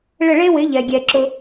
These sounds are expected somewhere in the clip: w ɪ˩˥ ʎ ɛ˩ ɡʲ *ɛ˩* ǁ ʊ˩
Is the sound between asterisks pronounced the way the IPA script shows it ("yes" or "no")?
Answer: yes